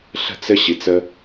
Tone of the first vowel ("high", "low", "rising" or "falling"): falling